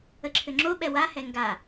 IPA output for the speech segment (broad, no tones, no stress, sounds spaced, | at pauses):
ə ǁʰ ʏ ŋ͡ǁ o ɓ ɛ w a h ɛ ŋ ɡ a